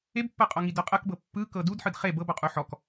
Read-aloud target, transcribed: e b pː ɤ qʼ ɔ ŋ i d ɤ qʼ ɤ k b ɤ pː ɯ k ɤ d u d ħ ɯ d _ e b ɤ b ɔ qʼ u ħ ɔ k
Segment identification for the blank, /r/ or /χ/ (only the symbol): χ